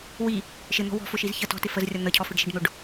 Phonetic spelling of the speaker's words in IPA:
wi | ʃɪn̪ɔ̤ wɔ̤fʊʃiz çə tɔ̤tɪ fəzrʲʌ n̪əcʰɔ fɪɖʃiɖn̪ʊɖ

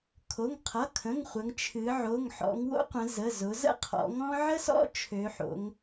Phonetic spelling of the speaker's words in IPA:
kʰo˩˧˩ŋqʰʌ˩˧˩kʰə̃˩˧˩ŋ χʷə˩˧ŋt͡ʃʰɨ˩˧ ʕo˩˧˩ŋħɔ̰˩˧ŋwo̰˥qʷə̃˩˧ zə˩˧˩zʊ˩˧zə̰˥ qʰɔ̰˩˧ŋɔ̃˥ ʕə˥sɔ̰˥ t͡ʃʰø˩˧ħo̰˩˧ŋ

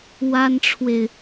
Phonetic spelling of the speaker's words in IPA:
wa˥nʈ͡ʂʰwe˨ɪ̯

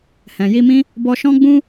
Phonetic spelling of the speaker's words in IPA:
hɛ̃˨ji˧mĩ˦ | bɔ˧ʃɔ̃˦ɡ͡bũ˦

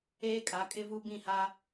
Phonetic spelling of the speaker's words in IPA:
eː˦kʼa˨˦ kʼɪ˦vu˦ bĩ˦˨ha˦

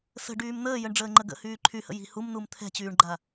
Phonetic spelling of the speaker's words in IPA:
sə̤ ɖyːmn̪əːjəɳ ɖ͡ʐəːŋ͡ǃəɡə̰hyː ǃʰyhə̰ ji̤ humnum t̪ʰɛ̤t͡ɕyːɳɡ͡ǃa

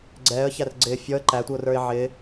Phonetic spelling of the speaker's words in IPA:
ɡ͡ǀɛːə̯çær ɡ͡ǀɪː fʲɔə̯ ǃætʷiʊ̯rə˞ɪ̯ ʕɪː

